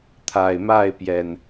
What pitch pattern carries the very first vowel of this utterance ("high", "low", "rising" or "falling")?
low